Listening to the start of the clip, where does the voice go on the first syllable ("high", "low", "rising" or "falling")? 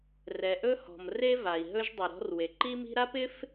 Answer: low